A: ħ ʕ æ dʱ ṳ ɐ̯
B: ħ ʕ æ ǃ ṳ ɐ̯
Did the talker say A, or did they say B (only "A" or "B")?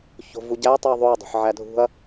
A